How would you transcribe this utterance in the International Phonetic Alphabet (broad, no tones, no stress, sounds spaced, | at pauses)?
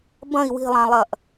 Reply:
b ɐ̃ i̯ w i̤ lˠ ã lˠ ɐ ʔ